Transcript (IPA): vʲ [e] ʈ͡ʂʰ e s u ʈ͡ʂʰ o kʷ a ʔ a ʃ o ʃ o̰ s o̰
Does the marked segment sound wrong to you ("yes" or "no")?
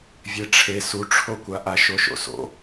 no